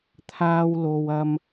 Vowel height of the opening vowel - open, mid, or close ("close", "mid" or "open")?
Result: open